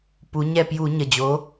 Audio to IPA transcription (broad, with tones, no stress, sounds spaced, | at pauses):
p u˩˧ ɲ ɛ˧˩ p j u˧˩˧ ɲ ə˩˧˩ d͡ʑ o˨˥